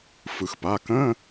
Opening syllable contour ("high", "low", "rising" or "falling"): low